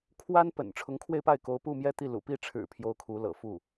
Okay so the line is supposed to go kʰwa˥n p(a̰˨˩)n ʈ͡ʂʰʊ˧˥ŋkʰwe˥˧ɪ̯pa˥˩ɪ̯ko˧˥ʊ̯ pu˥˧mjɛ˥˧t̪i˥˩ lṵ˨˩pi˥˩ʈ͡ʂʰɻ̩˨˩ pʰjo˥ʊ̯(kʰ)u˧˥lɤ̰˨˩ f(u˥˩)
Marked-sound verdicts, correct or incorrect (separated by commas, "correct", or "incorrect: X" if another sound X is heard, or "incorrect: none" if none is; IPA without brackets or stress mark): incorrect: ə̰˨˩, correct, correct